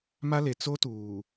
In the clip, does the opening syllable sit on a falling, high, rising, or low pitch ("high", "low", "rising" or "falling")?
high